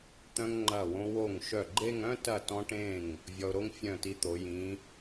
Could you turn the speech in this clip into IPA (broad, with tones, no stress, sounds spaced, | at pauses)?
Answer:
t̪ œ̃˧ ŋ ŋ͡ǃ ɐ˧˩ w õ˧ w o˧˩ ŋ ʃ œ˧˩ ɡ͡ǃ e˥˧ ŋ œ̃˥˧ t ɐ˧˩ t ɔ̃˧ ʈ ẽ˧˩ ŋ | vʲ ɔ˧ ʊ̯ ɾ o˥ ŋ fʲ œ̃˧˩ t i˧ t̪ o˩˧ j ĩ˩˧